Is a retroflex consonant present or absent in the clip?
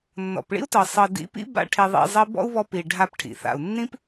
present